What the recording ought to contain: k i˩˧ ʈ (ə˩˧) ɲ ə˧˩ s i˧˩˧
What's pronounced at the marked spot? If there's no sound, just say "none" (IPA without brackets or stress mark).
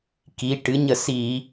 ɨ˩˧